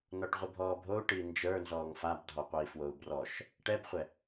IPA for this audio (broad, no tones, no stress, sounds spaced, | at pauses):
n ɔ ʈ ʁʷ i bʱ ɔː bʱ o u̯ ʈ i n d͡ʒ ə˞ n z ɔː ŋ f a b dʱ ɔ qʷ ɛ i̯ f w o u̯ b r ɔ ʃ | ʈ ɛ b χʷ ɛ